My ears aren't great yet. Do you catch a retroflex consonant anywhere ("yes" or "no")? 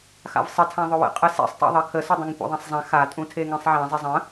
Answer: no